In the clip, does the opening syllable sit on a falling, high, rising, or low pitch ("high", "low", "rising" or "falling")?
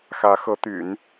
rising